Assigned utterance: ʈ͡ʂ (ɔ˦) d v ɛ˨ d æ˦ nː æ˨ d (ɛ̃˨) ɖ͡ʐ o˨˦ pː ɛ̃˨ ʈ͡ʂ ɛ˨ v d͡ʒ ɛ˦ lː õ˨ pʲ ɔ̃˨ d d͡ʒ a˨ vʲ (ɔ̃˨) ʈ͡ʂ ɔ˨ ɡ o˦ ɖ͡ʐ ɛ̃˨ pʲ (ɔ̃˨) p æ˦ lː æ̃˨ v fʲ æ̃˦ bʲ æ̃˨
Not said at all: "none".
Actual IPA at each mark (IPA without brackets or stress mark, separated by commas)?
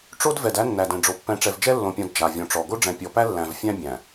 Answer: o˦, ɛ̃˨, ɔ̃˨, ɔ˨